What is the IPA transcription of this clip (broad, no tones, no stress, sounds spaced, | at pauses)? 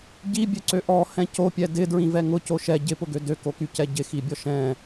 ɟ i bʲ ø ǀ ø ʔ ɔ h ɛ̃ c o pʲ ɛ d ɪ d ɹ ĩ v ɛ ŋ ʊ c o ʃ ɛ ɟ ɪ p ʊ ɡ ø d ø k o k y c ɛ ɟ ɪ x i bʲ ɔ ʃ ɛ̃